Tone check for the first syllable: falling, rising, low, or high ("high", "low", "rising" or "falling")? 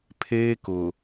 high